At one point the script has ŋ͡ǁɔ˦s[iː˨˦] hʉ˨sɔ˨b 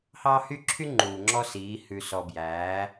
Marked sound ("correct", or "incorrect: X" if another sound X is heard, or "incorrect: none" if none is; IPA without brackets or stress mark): correct